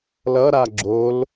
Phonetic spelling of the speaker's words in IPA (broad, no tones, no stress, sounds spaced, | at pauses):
l ʌ ɾ a ɡ͡ǁ o l